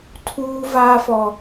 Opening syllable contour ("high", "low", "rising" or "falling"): high